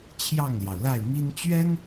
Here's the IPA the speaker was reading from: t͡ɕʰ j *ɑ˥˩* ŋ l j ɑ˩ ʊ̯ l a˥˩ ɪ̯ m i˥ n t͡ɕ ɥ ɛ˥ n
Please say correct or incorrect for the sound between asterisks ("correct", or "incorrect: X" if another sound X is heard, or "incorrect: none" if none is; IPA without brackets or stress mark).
correct